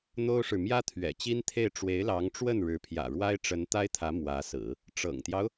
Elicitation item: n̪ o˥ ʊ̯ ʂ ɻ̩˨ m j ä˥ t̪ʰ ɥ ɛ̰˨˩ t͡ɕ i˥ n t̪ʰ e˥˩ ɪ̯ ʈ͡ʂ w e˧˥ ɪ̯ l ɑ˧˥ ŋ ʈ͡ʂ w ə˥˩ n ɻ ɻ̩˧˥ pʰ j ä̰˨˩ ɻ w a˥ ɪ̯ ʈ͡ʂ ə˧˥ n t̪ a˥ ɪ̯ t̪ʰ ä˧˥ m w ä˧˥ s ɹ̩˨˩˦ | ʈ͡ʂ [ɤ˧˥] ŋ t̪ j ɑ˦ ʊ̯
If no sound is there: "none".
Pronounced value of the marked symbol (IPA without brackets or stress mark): ɤ̰˨˩